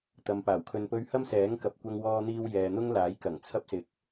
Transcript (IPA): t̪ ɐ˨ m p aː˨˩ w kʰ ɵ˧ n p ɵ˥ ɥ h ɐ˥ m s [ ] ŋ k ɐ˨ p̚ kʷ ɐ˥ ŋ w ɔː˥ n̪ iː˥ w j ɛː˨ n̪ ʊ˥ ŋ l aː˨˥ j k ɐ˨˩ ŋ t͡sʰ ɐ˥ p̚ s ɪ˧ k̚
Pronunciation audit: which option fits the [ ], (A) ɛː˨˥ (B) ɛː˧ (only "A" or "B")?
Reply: A